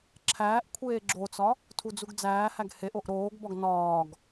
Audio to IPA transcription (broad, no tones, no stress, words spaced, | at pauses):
ǁʰæːʔkʷʰeː ɡ͡ǁot͡sɒ | tʰud͡zuɡd͡zæːhæɡ heʔ oʔɾoːɡbɒɡ nɒːɡ